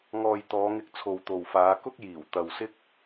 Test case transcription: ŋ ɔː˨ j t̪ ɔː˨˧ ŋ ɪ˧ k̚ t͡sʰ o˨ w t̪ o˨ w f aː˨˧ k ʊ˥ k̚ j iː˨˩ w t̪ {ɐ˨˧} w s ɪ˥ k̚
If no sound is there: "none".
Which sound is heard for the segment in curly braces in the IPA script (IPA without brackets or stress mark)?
ɐ˨